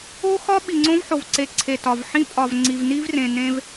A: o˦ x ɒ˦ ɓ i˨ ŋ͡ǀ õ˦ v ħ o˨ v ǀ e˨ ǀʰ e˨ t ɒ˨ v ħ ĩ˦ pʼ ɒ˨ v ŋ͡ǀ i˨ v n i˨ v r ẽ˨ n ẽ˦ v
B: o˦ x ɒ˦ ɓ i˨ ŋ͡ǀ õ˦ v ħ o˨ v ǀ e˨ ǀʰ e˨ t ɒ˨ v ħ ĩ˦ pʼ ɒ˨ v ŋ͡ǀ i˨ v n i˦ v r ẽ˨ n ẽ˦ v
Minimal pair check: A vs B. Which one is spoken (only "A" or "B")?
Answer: B